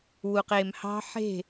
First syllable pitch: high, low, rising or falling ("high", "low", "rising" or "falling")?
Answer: low